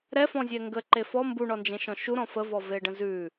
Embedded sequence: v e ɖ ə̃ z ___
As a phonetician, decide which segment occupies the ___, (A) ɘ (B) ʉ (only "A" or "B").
B